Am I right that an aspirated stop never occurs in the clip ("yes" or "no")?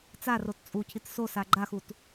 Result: no